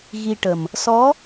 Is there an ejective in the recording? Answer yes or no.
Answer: no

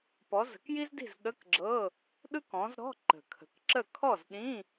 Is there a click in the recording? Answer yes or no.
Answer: yes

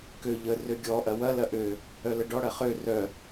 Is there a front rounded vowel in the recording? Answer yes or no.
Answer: yes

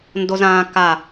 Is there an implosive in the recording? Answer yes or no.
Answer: no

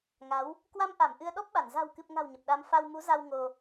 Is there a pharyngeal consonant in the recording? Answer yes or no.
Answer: no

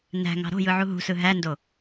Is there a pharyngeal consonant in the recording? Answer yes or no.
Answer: yes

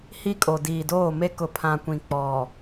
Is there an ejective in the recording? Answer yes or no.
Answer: yes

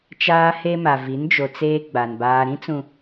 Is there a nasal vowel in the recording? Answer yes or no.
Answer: yes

